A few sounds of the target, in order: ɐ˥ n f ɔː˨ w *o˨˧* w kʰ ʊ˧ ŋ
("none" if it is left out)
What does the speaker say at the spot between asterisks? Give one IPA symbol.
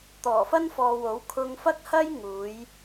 o˨˥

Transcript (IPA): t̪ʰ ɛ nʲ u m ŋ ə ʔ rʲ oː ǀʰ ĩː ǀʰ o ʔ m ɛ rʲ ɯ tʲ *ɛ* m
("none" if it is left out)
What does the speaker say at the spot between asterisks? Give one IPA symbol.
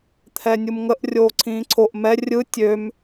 ø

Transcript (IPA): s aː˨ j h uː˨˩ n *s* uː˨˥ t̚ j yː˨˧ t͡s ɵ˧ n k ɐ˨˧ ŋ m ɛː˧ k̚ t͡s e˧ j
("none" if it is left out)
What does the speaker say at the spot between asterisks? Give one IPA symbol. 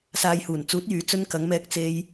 t͡s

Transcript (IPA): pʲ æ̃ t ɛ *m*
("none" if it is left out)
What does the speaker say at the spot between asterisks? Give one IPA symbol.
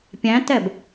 b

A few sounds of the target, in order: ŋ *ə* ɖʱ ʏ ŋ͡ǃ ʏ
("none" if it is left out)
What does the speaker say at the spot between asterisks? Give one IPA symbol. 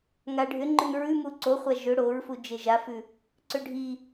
a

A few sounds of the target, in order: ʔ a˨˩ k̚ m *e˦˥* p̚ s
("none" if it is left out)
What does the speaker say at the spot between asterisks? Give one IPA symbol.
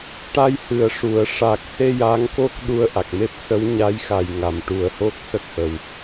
e˦˥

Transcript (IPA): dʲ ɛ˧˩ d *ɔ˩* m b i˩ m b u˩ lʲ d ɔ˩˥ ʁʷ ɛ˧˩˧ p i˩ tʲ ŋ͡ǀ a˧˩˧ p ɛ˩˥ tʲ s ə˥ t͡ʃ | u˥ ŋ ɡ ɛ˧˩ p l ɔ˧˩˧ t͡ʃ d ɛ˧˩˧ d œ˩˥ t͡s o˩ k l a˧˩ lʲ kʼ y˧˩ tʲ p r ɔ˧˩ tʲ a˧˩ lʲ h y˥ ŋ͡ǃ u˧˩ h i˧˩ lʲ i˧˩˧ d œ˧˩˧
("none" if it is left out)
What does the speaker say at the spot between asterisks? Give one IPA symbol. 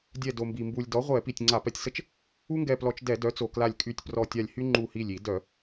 o˩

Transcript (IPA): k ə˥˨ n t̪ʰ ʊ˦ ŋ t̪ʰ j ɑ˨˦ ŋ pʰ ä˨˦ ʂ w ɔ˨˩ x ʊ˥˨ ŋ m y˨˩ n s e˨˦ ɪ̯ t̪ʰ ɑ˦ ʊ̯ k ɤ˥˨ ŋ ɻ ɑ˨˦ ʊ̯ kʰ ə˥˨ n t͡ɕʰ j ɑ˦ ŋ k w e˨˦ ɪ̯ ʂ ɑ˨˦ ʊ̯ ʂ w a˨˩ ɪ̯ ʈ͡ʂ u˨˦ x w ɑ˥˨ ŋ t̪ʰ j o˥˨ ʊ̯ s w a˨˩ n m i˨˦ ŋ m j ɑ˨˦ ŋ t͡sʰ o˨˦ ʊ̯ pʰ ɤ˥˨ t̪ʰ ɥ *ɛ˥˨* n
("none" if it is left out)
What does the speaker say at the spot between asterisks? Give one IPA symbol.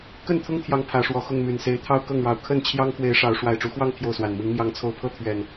ɛ˨˩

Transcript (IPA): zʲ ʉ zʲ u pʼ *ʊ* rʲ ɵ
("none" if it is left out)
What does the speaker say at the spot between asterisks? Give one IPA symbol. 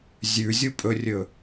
ɵ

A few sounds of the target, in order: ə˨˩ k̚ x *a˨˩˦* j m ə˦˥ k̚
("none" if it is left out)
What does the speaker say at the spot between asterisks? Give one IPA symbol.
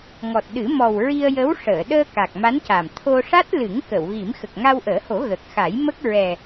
a˨˩˦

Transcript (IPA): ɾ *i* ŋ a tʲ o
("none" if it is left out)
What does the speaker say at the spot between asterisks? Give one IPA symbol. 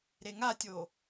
e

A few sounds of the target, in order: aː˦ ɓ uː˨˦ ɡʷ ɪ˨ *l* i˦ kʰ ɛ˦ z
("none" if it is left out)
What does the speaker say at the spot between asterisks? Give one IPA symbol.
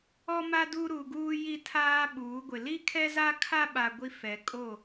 l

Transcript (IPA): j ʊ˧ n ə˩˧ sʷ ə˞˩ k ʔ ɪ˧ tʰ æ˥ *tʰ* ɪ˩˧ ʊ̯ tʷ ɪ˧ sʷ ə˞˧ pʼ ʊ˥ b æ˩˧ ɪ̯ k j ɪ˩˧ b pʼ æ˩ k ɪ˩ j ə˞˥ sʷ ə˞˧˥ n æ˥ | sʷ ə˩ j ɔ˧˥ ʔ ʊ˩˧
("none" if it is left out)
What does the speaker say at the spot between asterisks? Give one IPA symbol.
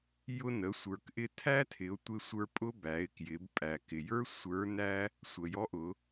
tʰ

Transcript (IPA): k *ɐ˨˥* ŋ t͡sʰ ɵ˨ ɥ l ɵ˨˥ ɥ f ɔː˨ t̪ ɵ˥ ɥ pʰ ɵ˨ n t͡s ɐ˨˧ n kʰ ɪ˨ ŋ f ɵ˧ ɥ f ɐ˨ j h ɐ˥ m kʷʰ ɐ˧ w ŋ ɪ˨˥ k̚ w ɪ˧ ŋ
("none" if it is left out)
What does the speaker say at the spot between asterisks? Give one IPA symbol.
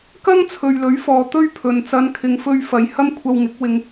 ɐ˥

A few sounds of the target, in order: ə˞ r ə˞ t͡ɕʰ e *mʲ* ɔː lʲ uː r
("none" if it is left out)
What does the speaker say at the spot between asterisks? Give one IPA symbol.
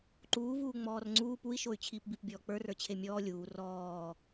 mʲ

